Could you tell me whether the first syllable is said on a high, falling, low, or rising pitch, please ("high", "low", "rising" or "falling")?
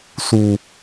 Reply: low